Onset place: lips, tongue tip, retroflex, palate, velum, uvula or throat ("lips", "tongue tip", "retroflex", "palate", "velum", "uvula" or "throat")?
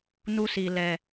tongue tip